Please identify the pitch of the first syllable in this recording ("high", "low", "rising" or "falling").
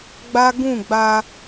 high